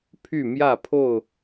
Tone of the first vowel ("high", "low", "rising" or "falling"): falling